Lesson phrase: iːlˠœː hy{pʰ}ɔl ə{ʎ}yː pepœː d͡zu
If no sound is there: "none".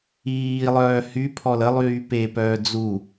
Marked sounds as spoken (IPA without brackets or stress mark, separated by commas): pʰ, lˠ